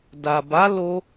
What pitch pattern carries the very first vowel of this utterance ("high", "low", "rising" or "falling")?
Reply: low